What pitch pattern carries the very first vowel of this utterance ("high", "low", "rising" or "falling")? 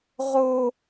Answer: high